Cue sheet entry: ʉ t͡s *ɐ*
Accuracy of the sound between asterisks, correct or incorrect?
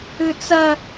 correct